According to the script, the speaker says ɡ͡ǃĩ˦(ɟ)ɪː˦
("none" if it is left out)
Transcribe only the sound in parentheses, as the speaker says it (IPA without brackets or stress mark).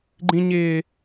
ɲ